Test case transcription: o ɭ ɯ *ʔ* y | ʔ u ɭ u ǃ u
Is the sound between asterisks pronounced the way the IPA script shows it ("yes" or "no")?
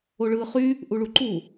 no